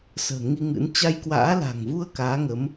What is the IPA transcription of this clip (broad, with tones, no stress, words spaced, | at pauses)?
sə̤ː˨˩ŋi˧ŋɨ̰˧˥n t͡ɕa˧jkwa̰ː˧˥la̤˨˩ŋvu˧ə̯ kaː˨˦ŋə˨˦m